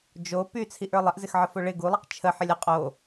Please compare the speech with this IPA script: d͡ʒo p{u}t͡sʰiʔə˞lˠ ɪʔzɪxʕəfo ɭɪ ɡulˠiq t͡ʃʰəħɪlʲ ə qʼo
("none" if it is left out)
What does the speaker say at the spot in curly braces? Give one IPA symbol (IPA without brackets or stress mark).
y